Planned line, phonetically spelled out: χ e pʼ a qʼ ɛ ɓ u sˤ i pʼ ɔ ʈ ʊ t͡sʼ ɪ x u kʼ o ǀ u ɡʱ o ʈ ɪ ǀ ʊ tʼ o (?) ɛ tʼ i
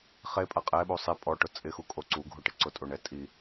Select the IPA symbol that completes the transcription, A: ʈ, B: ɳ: B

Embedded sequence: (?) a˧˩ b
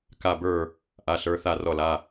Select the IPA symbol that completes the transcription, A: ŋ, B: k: B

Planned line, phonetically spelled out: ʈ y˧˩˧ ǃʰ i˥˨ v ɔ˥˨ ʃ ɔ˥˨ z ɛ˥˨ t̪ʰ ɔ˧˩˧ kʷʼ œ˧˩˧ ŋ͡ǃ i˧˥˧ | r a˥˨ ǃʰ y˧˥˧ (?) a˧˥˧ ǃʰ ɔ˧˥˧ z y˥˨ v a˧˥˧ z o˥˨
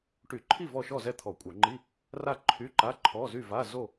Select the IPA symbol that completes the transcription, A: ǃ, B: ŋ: A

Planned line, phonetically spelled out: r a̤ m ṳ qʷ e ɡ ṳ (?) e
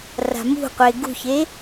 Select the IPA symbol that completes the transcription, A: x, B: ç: B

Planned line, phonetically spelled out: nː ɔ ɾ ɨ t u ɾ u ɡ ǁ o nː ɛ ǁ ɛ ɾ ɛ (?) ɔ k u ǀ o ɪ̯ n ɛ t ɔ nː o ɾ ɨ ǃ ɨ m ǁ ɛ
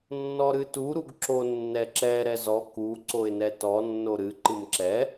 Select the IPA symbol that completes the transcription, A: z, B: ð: A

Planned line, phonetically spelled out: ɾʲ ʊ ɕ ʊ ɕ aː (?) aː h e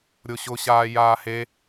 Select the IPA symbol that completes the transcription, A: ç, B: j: B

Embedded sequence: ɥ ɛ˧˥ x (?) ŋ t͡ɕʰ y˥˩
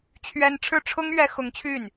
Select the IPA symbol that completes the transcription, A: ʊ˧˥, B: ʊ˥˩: A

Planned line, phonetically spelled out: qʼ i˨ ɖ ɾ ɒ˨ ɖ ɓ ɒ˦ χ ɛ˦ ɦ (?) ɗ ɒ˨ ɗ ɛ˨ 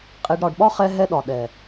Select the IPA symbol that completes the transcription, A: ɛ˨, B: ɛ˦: B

